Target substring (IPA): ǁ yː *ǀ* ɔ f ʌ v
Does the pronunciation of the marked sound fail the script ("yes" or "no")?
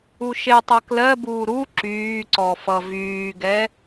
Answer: no